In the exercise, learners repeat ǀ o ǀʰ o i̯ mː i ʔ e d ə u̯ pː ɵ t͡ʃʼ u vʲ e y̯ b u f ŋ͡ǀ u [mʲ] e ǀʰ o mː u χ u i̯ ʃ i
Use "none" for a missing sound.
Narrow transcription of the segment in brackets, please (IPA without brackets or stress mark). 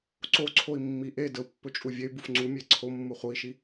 mʲ